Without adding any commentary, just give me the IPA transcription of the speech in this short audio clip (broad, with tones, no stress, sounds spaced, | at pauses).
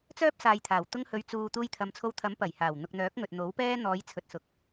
t͡s œː˥ p̚ s aː˨ j t̪ʰ aː˨˩ w t̪ ʊ˥ ŋ h ɵ˧ ɥ t͡s uː˨ t̪ uː˧ j t̪ʰ ɐ˨ m t͡sʰ o˧ w t̪ʰ ɐ˨˥ m p ɐ˨˩ j h aː˨˩ w n̪ ʊ˨ k̚ n̪ œː˨˥ k̚ ŋ ɵ˨ t̚ n̪ o˨˥ w p ɛː˥ n̪ ɔː˨˧ j t͡sʰ ɵ˨ t̚ s ʊ˨ k̚